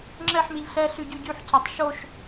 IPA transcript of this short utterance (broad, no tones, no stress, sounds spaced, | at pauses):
ŋ͡ǁ ɛ ħ m i ʎ ɬ ɛ ɬ y ɟ y ɟ y ħ c a tˤ ʃ o ʃ